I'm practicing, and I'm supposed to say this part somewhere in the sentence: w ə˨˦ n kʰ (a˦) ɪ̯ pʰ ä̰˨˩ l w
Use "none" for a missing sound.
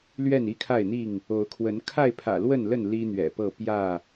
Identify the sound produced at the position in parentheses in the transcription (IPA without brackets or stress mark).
a˥˨